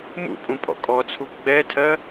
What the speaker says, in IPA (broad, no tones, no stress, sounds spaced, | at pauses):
m ṵ pʼ ũ pʼ ɔ̰ kʼ ɔ t͡sʰ u ɡ͡b ɛ tʰ ɜ